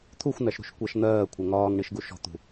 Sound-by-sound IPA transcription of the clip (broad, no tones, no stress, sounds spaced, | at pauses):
t̪ʰ u xʷ n̪ æ ʃ ɾ ṳ ʃ kʷ æ ʃ n̪ ɜː kʷʰ ɜ ŋ ɒː ŋ ɳ i ʃ ɡ u ʃ ɔ̤ t̪ ṳ